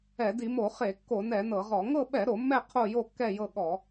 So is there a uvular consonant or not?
yes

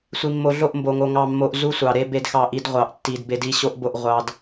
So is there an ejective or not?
no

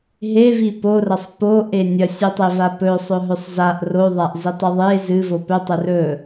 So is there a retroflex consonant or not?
no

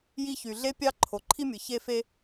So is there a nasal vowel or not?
no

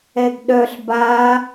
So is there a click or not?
no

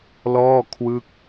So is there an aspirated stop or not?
yes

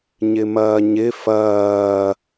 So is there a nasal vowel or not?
no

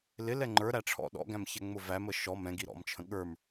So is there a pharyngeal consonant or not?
no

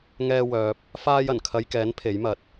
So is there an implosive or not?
no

